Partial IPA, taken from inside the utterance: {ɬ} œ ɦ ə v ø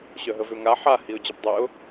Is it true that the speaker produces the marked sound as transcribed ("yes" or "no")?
no